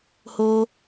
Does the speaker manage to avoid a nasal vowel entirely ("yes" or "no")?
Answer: yes